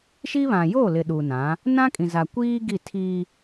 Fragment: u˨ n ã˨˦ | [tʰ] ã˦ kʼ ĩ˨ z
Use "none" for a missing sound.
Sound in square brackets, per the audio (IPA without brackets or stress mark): n